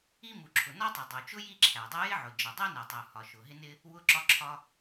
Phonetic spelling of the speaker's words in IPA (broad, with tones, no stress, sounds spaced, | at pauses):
i˥ m u˩ ǁʰ ʊ˩ n ɒ˥ tˤ i˩ dˤ u˩ t͡ʃ ʊ˥ j i˥ ǁʰ æ˩ dˤ ʊ˥ j ɪ˥ ʕ ʊ˩ d͡ʒ ə˩ dˤ ɛ˥ n ɛ˩ tˤ u˩ h ɒ˩ ʃ ʊ˩ ɦ ɪ˥ n ɪ˥ | w ʊ˥ ǁ ɒ˥ ǁʰ ɒ˥